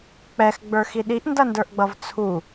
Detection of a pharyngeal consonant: absent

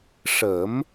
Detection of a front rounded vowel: absent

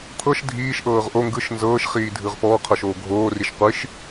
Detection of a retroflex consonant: absent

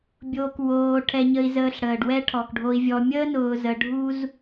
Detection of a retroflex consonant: present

